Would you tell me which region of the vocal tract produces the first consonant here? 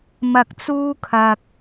lips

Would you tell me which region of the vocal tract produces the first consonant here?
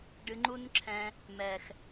retroflex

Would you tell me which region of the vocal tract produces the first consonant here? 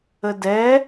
tongue tip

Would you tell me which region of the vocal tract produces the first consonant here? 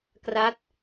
velum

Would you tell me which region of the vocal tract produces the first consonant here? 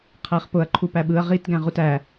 uvula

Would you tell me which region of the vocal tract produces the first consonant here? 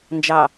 tongue tip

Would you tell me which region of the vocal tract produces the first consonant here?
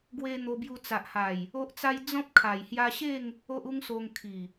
velum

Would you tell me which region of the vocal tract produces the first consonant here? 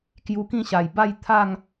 velum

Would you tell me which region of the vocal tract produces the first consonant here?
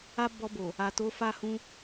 lips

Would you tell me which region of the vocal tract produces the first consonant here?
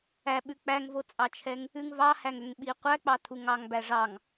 lips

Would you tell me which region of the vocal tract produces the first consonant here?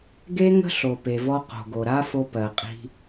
velum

